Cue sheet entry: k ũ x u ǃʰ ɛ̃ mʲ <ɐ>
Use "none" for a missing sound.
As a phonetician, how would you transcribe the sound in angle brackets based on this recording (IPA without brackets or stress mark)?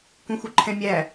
æ